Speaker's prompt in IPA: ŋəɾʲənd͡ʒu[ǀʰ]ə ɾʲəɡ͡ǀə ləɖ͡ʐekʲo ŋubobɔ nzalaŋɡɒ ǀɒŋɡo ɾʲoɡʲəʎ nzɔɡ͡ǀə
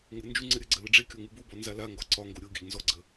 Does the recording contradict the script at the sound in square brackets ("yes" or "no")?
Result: yes